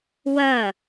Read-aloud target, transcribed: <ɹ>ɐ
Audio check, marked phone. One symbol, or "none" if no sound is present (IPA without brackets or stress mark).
w